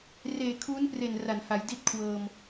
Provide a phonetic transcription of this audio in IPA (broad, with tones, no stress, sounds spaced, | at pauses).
r eː˨˩ kʰ uː˦˥ n p r e˨˩ n r a˩˦ n h a˩˦ j d i˥˩ t̚ kʰ w ɤː˧ m